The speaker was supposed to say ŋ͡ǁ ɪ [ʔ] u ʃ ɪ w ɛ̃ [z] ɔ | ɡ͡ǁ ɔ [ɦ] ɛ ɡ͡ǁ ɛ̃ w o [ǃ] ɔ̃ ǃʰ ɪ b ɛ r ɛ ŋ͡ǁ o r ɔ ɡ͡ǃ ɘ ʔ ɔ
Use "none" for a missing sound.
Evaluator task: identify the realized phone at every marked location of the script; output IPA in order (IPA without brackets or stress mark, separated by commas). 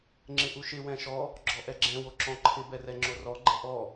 ʔ, ʃ, ʔ, ǁ